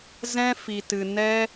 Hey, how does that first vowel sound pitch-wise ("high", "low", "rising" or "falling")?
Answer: high